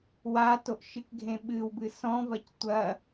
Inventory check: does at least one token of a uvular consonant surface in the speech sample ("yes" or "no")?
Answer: no